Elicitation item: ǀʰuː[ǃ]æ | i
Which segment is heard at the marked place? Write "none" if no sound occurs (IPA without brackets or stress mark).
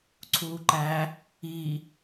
ǃ